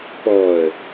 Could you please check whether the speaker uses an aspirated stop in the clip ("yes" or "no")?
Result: no